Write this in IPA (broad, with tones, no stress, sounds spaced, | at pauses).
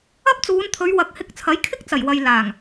ɐ˥ p̚ t͡s uː˨˧ n t̪ʰ ɵ˨˧ ɥ w ɐ˨˥ k̚ h ɪ˧ k̚ t͡sʰ ɐ˨˥ j kʰ ɪ˥ k̚ t͡s ɐ˨˩ j w ɐ˨ j l aː˨˩ ŋ